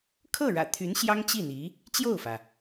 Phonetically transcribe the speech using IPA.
kʰ ɤ˥˩ ɻ ä̰˨˩ t̪ʰ y˧˥ n ɕ j ɑ˥ ŋ t͡ɕ i˥˩ n̪ i˧˥ | t͡ɕ j o˥˩ ʊ̯ f ä˩

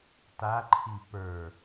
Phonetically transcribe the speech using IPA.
t a ǃʰ i p ə˞

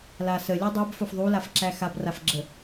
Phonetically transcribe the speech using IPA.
l a s ə lʲ o dˤ e b f o f ðˤ u l a f ǁ æ x a b r a f ɡ͡ǁ ə

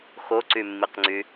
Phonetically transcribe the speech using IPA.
x o ǀ y mː i q ŋ͡ǀ y

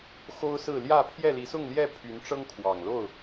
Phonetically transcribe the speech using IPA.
x o˦ ʊ̯ s ɹ̩˥˨ l j ä˥˨ pʰ j ɛ˥˨ l i˨˦ s ʊ˥˨ ŋ l j ɛ˥˨ pʰ y˨˦ n ʈ͡ʂ ɤ˦ ŋ kʰ w ɑ˨˩ ŋ l o˥˨ ʊ̯

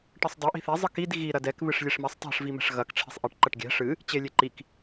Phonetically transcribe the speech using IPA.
ʈ ɨ sˤ dˤ ɛ ʔ i̤ θ e zˤ ɨ k i d ɣ i ɾ ɐ d ɛ k β ɨ ʂ lʲ e ʂ m ɛ sˤ tˤ ɛ̤ ʂ v i m ɛ̤ ʂ ɣ ɐ k ʈ͡ʂʰ e̤ sˤ ʔ i ʈ ǃ ɐ ʈ ɡʲ ɛ̤ ʂ ɨ | t͡ɕ e lʲ e ǃ i k

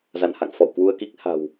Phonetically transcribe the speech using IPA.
z a̰˧˨ n h a̰˧˨ ŋ f ɔ̰˧˨ w k w u˧ ə̯ k i˦˥ k̚ h a̤˨˩ w

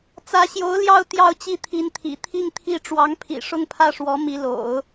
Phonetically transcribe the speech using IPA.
t͡s ä˧˥ ɕ j o˧˥ ʊ̯ l j ɑ˥˧ ʊ̯ t̪ j ɑ˥˧ ʊ̯ t͡ɕ i˥˩ t̪ʰ i˧˥ n t̪ʰ ḭ˨˩ t̪ʰ i˥˧ ŋ t̪ʰ i˥˩ ʈ͡ʂ w ɑ˧˥ ŋ pʰ ḭ˨˩ ʂ ʊ˥˧ ŋ pʰ ä˥˩ ʂ w ɔ˧˥ m i˧˥ l o̰˨˩˦ ʊ̯

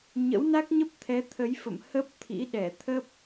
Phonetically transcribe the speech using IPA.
ɲ ə̰˧˥ w n a˦˥ k̚ ɲ ə˦˥ p̚ t̪ʰ ɛ˨˦ t̪ʰ ə˨˦ j f ə̰˧˨ m h ə˦˥ p̚ t̪ʰ ḭ˧˥ ɗ ɛ˧˩ t̪ʰ ə˦˥ p̚

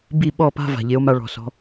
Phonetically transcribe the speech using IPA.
b i˦˨ ɓ ɔ˦˨ p a̤˦ v a̤˨ ʎ e˨˦ o̯ m a˧ ɭ ɔ̤˨ s ɔ̤˧

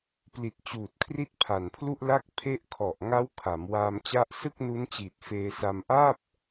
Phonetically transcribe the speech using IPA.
p l i˨˩ t̚ t͡ɕ uː˨˩ t̚ kʰ r i˦˥ t̚ pʰ a˨˩ n pʰ l u˥˩ ʔ l a˥˩ k̚ pʰ e˦˥ ʔ kʰ ɔ˨˩ ʔ ŋ a˦˥ w kʰ a˩˦ m w aː˧ m t͡ɕ a˦˥ ʔ s ɯ˥˩ k̚ n u˦˥ n t͡ɕ iː˨˩ t̚ f eː˧ s a˧ m ʔ aː˥˩ p̚

